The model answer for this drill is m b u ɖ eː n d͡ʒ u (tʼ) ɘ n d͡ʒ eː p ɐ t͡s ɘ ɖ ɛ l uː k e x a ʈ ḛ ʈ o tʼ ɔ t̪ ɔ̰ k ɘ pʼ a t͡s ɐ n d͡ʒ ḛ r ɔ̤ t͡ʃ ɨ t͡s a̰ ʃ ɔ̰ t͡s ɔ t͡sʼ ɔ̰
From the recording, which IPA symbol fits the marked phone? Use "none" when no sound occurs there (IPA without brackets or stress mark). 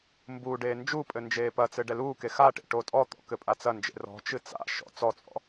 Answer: pʼ